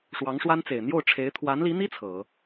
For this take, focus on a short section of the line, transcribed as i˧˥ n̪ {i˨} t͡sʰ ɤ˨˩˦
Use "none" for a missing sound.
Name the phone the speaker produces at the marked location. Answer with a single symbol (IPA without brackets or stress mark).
i˥